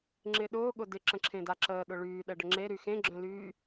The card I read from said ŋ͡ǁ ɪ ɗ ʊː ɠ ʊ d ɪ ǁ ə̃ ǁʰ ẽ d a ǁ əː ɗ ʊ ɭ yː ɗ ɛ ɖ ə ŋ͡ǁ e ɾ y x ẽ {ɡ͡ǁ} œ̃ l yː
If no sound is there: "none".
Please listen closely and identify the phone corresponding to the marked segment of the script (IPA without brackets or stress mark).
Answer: ɡ͡ǁ